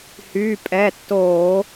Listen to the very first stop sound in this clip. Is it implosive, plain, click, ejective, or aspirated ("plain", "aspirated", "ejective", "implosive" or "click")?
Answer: ejective